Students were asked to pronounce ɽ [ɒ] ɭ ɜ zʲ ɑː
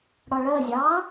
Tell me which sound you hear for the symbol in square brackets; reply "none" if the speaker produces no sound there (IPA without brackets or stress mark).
ɒ